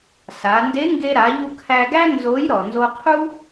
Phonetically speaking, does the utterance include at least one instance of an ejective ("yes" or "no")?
no